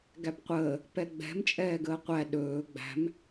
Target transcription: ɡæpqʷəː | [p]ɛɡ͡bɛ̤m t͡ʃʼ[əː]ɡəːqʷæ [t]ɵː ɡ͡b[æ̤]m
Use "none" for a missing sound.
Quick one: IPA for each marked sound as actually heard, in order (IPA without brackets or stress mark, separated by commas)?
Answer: p, ɛː, ɗ, æ̤